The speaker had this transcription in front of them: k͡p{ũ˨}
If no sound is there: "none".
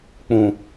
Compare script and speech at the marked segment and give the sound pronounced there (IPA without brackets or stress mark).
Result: ũ˨